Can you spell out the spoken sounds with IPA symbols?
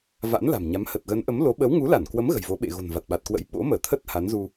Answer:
v a̰˧˥ n l a̤˨˩ m ɲ a˨˦ m h ə˨˩ t̚ ɣ ə˨˦ n ʔ ə˨˦ m l o˨˦ ɓ ə˨˦ w ŋ u˨˦ l a˧˩ n k w ə˨˦ m ɣ ə̤˨˩ j v o˨˦ ɓ ḛ˧˨ ɣ o̤˨˩ n v a˨˩ t̚ ɓ a˨˩ t̚ k w ə̰˧˥ j ɓ o̰˧˥ m əː˧˩ t̪ʰ ə˦˥ t̚ h a˨˦ n z u˧

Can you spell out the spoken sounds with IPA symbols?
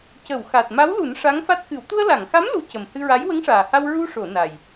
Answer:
c ə˨˩˨ w x a˨˩ t̚ m a˧˥ w l u˨˩˦ n ʂ a˧˥ ŋ f a˦˥ t̚ x ɨ˨˩˦ w t̪ u˧ ə̯ l a˨˩˨ ŋ x a˧˥ m l u˧˥ c ə˨˩ m h ɨ˧ ɹ a˧˥ j w ə˧˥ ŋ ʂ aː˨˩ h a˧ w ɹ u˧ ʂ o˨˩˨ n a˨˩ j

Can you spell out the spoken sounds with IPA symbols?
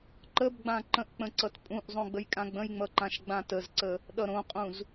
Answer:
ǃ ə b ɡ͡b ã ǃ ə̃ ʔ k͡p ə̃ ǀ ʌ t pʼ ũ ʔ zˤ õ ɡ͡b ə j kʼ ã ɡ͡b ə̃ j ŋ͡m ʌ ǃ ã ʃ ɡ͡b ã t ə z ǀ ə | ɗ ʌ ɾ õ qʼ ũ z

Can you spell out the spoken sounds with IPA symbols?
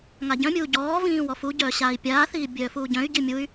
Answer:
ŋ a ɟ œ̃ mʲ uː ɟ ɔː v ĩː w ɔ f u ɟ œː ɕ aː i̯ pʲ aː θ iː bʲ œː f uː ɟ œ̃ y̯ ɟ i mʲ u y̯

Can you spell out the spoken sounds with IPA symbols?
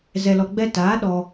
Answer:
z ɛ˧ l ɔ˧ ɡ͡b ɛ˦ t aː˨˦ ɗ ɔ˧

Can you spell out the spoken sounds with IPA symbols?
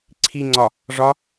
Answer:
ǀʰ i ŋ͡ǀ ɒ | ʐ ɒ

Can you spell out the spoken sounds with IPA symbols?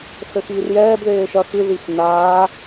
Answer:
s ɘ x iː r j ɛː b ð eː ʃ ɐ x ɨ ð i x n aː

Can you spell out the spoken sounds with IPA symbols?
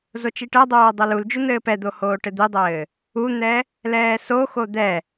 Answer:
z o t͡ʃ i ʈ ɛ dˤ oː dˤ o l u l d͡ʒ u n̪ ɘː p ɛ d̪ o h oː ʈ ɘ d̪ i dˤ ɘː | u n̪ ɛ | l ɛː s o x o d̪ ɛ

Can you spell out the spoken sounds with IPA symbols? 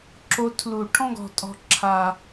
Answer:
ǁ o˧ tʰ l u˨ ʈʰ ɔ̃˦ ɡ ɔ̤˨ tʼ ɔ̤˨ ǁʰ a˨

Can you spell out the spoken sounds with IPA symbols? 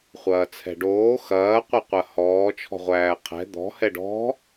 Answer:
χʷ ɐː t͡sʰ ɛ̤ ɖ oː x ɐː qʷ ɛ qʷ ɐ h ɔː t͡ʃʰ ɔ̤ ʁʷ æː qʰ ɛ̤ d̪ ɔ̤ h ɛ ɖ ɔ̤

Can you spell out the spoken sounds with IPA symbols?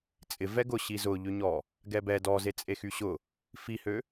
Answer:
t͡sʼ ɪ v ɛ ɡ ʊ ɕ i z ʊ ʎ ʏ ɲ ɔ | ɡ ɛ b ɛ d ɔ z e t͡sʼ e x y ɕ ʊ | f i h ø

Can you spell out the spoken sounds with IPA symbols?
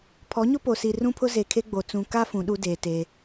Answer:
pʰ ɔ˨˦ ɲ ʊ˦ p o˨ s i˨ r ũ˦ pʰ ʊ˦ z e˨ kʰ e˦ ɡ͡b o˨ t͡s ũ˨ k a˦ f ũ˨˦ ɗ u˦ d eː˨ t e˦

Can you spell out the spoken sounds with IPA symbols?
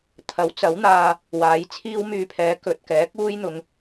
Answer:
t̪ʰ ɐ˨˥ w t͡s ɐ˨˥ w n̪ aː˧ | w aː˨˥ j t͡sʰ iː˥ w m yː˧ pʰ ɛː˨˥ k ɵ˨ t̚ k ɛː˨˥ k̚ uː˥ j n̪ ʊ˨ ŋ

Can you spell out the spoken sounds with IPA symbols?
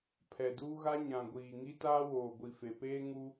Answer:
pʰ ɛ˨ d uː˦ ɣ a˦ ɲ ã˨ ɡʷ iː˨ ŋ i˦ t aː˦ w oː˨ ɡʷ i˨ f e˨ p eː˦ ŋ u˦

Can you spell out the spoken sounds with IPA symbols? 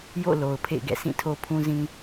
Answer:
j o̰˦˨ l o˨ ʊ̯ pʰ ḛ˦˨ ɪ̯ ɡ ɛ̰˦˨ s ĩ˦˨ tʰ o˦ pʰ ũ˦ z ĩ˦

